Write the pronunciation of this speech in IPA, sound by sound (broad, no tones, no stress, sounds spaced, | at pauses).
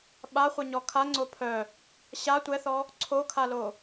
ɓ a χʷ ɛ ɲ ɔ kʰ a ŋ͡ǀ o pʰ œ | ɕ a tʷ ɛ θ ɔ | ǀʰ o kʰ a l o